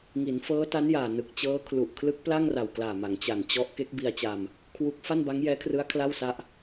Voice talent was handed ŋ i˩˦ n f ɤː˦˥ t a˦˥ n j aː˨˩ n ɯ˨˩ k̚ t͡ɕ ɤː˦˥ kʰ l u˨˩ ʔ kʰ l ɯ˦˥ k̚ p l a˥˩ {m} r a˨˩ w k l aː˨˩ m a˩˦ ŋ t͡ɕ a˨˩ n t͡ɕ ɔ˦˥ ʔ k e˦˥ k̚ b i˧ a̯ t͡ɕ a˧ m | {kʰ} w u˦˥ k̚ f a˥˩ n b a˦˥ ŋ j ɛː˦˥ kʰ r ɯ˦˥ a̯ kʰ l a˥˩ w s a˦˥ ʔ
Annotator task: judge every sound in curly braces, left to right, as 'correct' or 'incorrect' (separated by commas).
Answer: incorrect, correct